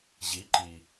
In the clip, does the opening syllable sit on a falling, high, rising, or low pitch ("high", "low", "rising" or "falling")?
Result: rising